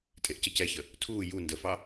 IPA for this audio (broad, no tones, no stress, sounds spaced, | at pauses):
tʼ e ʔ c ə c ɛ ç ə | tʰ uː j u n d ə f ɑ